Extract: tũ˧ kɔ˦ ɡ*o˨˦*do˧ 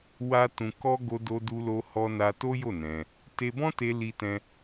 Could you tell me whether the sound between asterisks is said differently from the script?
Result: yes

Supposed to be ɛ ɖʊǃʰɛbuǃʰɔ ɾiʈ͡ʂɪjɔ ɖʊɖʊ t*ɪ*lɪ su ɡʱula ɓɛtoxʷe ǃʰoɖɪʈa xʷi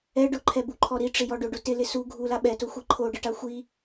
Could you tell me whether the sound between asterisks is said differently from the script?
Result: no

